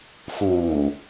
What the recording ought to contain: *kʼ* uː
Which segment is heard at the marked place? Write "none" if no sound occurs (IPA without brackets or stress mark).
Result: x